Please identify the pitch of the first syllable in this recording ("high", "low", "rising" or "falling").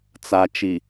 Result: low